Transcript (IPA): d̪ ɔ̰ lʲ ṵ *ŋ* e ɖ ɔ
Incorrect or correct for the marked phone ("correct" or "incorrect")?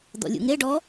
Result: correct